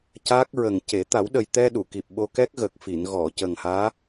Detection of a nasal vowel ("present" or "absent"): absent